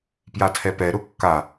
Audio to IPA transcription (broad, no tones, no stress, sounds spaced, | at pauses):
p j a tʰ ɛ p ɛ ɾ ʊ kː a